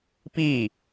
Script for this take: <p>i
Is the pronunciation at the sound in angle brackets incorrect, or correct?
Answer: correct